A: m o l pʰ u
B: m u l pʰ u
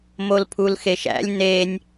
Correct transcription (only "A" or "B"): A